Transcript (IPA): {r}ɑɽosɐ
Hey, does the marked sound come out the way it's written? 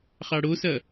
no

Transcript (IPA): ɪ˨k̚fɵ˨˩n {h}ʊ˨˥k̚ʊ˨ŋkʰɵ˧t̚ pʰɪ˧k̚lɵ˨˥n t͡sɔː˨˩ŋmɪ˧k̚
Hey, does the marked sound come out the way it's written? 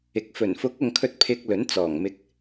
no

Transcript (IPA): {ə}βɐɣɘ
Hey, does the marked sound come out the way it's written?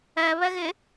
no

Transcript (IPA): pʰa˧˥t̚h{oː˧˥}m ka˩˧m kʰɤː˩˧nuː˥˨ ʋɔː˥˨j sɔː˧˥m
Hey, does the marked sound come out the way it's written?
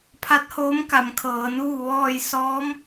yes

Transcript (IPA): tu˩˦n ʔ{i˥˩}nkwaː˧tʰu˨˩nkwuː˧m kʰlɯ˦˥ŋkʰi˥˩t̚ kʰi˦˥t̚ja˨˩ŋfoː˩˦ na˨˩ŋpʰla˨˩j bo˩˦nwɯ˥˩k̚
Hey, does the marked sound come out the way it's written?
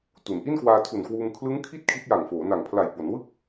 yes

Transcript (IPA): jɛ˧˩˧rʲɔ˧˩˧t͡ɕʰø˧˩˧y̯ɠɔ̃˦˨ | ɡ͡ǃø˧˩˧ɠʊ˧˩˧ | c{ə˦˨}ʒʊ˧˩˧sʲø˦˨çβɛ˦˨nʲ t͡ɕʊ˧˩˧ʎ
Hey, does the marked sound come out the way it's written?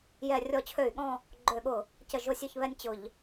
no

